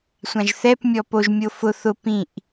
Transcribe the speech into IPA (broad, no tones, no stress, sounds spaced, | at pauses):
sʷ ã ʒ θ ɛ p mʲ ɔ p o ʒ mʲ o f ʊ θ ʊ p ĩ ʔ